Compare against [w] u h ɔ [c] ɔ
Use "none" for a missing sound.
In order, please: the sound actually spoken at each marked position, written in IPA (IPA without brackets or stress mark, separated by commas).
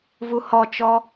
v, t͡ʃ